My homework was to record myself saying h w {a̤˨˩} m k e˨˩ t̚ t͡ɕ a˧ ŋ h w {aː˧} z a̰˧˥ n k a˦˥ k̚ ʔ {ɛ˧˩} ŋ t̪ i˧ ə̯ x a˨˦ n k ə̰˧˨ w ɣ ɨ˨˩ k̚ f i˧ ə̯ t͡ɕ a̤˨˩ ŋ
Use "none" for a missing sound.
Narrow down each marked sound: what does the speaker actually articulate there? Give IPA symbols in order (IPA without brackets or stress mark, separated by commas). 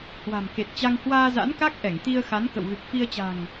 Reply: a̤˨˩, aː˧, ɛ˧˩